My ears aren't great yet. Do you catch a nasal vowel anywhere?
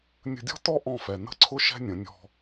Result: yes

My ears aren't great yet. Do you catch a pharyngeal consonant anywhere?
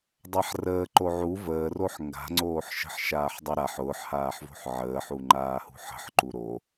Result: yes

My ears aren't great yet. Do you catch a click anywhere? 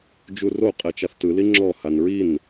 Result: yes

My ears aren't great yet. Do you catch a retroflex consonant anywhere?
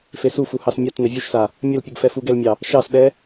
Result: no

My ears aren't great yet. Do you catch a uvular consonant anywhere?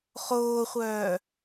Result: yes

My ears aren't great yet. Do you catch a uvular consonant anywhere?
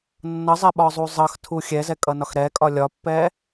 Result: no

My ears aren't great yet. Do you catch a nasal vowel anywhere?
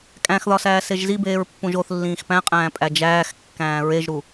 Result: yes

